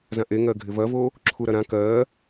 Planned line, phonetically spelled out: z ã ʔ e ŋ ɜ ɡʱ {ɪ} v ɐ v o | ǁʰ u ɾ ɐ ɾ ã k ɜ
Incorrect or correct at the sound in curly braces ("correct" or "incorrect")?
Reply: correct